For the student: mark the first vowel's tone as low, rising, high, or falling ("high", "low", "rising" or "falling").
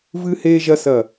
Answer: high